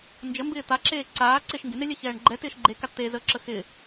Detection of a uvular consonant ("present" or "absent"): absent